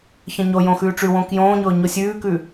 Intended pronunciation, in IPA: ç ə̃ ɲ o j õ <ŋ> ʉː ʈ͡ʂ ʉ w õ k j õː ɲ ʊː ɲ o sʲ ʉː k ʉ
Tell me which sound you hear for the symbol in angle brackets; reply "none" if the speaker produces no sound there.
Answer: x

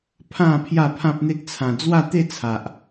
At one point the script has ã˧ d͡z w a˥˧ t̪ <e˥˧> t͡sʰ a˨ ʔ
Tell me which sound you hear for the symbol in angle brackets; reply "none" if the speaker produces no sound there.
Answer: e˥˧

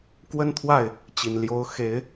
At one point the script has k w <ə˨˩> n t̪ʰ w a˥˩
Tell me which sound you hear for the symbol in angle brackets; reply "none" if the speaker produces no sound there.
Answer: ə˥˧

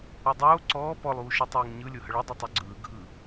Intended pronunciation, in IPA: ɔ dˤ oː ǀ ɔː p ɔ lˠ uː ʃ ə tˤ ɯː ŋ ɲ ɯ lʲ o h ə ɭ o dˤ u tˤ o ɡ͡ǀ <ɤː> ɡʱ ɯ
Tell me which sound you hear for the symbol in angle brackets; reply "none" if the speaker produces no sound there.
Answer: ɯː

